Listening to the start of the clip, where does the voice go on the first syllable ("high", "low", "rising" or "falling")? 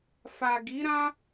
low